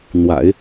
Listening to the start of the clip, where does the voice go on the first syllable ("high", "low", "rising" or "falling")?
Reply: low